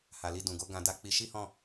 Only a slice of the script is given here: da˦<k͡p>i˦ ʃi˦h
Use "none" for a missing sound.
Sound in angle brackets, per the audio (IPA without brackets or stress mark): k͡p